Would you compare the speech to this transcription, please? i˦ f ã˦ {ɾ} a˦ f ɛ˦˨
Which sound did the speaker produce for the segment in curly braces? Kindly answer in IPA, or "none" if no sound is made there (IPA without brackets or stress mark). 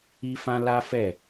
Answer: l